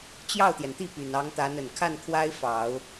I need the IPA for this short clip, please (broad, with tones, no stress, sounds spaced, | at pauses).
t͡ɕ j ɑ˥˩ ʊ̯ t̪ j ɛ˩ n t̪ i˥˩ p y˨˩ n ɑ˧˥ ŋ t̪ a˧˥ n ə˨˩ n kʰ a˥˩ n kʰ w a˥ ɪ̯ f ɑ˨˩˦ ʊ̯